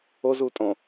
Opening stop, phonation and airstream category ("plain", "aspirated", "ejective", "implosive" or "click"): ejective